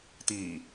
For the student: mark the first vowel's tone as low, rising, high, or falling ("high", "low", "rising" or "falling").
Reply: low